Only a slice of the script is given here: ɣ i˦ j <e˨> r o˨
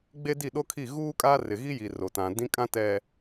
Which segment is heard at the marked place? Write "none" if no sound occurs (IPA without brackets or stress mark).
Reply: i˨